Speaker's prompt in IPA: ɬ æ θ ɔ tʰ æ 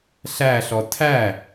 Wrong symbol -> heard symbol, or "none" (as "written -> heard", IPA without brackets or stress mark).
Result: θ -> ɬ